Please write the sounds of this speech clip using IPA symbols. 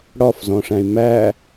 ɽɒfzɔ̃ʂæ̃y̯ mæ

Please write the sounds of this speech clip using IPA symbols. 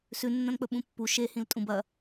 sʉnːɐ̃nk͡pɵ ɓũpːu ʃehĩltʼũb ɐ

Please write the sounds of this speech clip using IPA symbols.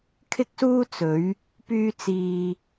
kʰɪ˥k̚suː˥ t͡sɵ˨˧ɥ | pyː˥t͡siː˧

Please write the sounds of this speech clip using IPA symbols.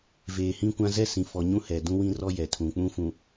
veː˨hĩ˦kʷã˦ zɛ˦sĩ˨fɔ˨ ɲũ˦hɛ˨ dũ˦wĩ˦rɔ˦jɛ˨ tʰũ˨k͡pũ˦fũ˨

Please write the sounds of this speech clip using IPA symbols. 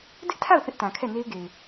dɪ˦ʔtʰa˦˨ʊ̯ θɪ˦ʔtã˨ kʰɛ˦˨ne˦ɪ̯ɡe˨ɪ̯

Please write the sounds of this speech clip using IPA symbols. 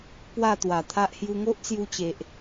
pwa˥˧t̪wa˨˩t̪ʰa˦ʔ hju˧ŋo˦ʔt͡sju˧ t͡ɕe˨ʔ

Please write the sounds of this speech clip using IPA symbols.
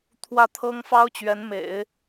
t̪ʰwä˥˩t̪ʰɤ˥ŋ fɑ˥ʊ̯t͡ɕɥɛ˧˥n mḛ˨˩˦ɪ̯

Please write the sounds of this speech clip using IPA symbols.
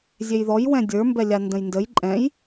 zʲejðɔj wɛ̃dʲə˞ mbɛlʲandə̃jndəj ǃʼɛ̃j

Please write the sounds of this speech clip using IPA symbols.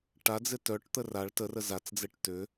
ʈa d͡zɪtœʈt̪ə raɭ tərə zat͡sd͡zeʈ tʏ

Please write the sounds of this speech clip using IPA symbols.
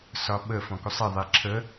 sɒɓə fɔ̃kusˤi ðˤiǁʰə

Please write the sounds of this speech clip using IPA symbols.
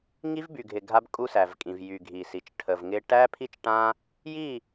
ŋi˦vby˨ɡʱɪ˨ ɡʱa˦bkʼu˦sæ˨vkʼĩ˨v jy˨ɡʱi˨si˨t͡ʃ ʈʰə˨vŋɪ˦ ʈæ˦pʰi˦t͡ʃʈã˦ | ji˦˨

